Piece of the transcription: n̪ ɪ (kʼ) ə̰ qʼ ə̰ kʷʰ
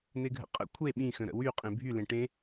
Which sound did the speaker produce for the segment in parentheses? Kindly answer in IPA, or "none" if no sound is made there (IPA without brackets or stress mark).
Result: ɡʱ